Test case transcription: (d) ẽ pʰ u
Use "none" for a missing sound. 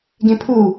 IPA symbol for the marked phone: ɡ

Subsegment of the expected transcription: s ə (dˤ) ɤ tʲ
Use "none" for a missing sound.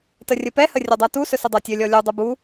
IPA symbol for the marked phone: dˤ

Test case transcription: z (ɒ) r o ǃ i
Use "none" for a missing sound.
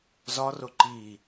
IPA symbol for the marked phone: ɒ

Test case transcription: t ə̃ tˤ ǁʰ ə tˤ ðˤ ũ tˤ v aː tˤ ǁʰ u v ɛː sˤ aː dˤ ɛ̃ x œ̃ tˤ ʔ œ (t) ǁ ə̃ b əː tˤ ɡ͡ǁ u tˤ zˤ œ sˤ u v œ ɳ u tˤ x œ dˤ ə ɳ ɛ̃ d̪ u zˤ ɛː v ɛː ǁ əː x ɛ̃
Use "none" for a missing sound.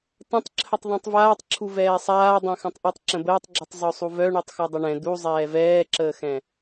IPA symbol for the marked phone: tˤ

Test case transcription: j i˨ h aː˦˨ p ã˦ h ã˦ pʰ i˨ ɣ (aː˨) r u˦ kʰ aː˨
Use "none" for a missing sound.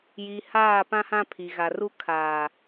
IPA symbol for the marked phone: a˨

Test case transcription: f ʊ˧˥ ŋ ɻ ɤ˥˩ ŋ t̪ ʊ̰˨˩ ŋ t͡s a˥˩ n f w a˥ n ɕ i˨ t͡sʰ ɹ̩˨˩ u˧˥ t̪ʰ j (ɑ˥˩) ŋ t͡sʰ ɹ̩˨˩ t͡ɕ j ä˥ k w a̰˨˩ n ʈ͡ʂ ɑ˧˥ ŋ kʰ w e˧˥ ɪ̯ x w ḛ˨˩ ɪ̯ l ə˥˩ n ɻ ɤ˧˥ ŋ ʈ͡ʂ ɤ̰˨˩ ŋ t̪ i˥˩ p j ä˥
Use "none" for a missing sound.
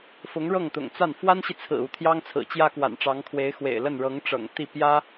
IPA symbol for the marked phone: ɑ˥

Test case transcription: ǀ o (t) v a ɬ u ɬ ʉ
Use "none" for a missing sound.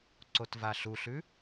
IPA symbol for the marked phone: t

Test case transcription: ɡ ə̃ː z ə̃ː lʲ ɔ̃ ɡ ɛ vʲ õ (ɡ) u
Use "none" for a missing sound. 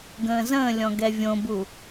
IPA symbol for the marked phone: b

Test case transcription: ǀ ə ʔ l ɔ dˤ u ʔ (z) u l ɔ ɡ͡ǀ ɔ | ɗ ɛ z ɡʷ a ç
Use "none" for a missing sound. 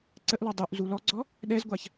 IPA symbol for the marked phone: z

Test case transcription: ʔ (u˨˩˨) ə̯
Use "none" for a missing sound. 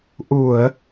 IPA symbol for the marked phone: u˨˩˨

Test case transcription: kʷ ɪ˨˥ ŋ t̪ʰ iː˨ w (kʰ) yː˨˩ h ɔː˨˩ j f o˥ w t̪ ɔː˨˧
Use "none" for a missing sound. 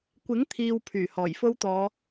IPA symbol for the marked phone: pʰ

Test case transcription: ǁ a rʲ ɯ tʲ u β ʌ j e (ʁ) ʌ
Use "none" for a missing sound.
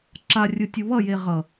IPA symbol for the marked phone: ʁ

